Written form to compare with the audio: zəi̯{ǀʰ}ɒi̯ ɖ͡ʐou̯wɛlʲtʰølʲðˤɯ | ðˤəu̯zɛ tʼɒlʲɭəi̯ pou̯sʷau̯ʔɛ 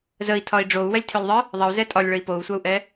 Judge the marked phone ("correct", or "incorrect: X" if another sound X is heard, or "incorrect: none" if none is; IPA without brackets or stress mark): incorrect: tʰ